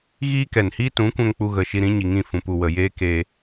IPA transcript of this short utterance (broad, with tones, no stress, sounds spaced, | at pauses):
ɣ iː˦ k ɛ˨ n h iː˦ t ũ˨˦ kʷ ɛ̃˧ ŋ k͡p u˧ ɣ ə˨ ʃ i˧ ɾ ĩ˨˦ ɲ i˨ ŋ ĩ˦˨ f ũ˨ p u˨ w ə˨ j eː˦ k eː˧